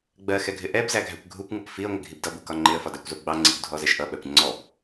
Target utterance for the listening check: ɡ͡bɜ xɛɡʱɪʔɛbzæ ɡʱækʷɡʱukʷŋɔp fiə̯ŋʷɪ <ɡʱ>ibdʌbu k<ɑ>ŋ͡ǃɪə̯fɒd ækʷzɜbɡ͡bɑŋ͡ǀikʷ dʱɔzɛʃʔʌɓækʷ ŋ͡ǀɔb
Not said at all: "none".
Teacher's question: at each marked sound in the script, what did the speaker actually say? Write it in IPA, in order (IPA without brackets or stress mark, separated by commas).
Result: ɡʱ, ɒ